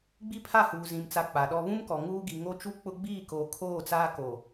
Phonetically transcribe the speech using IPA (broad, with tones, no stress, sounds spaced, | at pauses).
ɡ͡b i˦ pʰ a˦˨ h uː˨ z ĩ˨ m t͡s a˨ k͡p a˨ ɗ ɔ˦ β ũ˦ m k ɔ˨ ŋ uː˦ ɡ i˨ ŋ o˦ t͡ʃ u˦ k͡p ʊ˦ ɡ͡b iː˦˨ k oː˨ kʰ oː˦˨ t͡s aː˦ k o˨